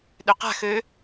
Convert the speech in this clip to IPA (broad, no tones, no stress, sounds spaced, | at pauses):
ɗ ø q a̤ x ø